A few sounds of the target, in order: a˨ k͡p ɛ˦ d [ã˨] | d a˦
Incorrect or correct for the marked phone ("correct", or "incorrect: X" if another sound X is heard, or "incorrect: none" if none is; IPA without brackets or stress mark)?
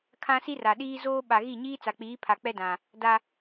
correct